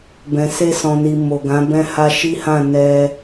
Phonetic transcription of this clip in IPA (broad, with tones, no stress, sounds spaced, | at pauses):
b ɛ̃˨ s e˧ s ɔ̃˨ n i˨ m o˨ ɡ ã˨˦ b ɛ̃˧ h a˧ ʃ i˦ h ã˦˨ n ɛ˧